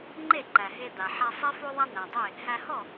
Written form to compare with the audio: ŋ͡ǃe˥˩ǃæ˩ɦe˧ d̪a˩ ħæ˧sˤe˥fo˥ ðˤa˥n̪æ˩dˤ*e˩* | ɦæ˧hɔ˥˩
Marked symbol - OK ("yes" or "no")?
no